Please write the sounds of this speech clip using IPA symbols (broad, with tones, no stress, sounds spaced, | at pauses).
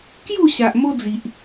k j u˥˧ ɕ a˨ ʔ m o˦ d͡z i˨ ʔ